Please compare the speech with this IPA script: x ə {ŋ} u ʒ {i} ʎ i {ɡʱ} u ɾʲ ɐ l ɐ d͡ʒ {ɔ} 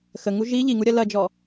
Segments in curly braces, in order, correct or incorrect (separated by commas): correct, correct, incorrect, correct